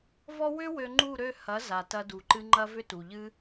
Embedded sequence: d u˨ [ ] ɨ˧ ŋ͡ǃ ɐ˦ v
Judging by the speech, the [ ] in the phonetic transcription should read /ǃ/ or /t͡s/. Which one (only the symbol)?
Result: ǃ